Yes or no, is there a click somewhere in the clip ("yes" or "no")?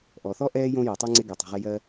yes